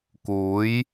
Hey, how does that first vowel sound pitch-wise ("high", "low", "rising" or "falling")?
rising